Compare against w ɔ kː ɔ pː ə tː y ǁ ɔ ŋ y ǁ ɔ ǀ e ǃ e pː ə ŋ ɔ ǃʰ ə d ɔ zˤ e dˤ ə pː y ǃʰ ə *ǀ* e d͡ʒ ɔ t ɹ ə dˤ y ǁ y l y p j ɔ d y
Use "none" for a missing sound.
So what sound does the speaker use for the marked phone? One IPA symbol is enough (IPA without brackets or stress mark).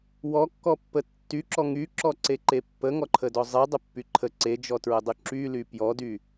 ǀ